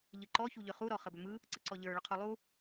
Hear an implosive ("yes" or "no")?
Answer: no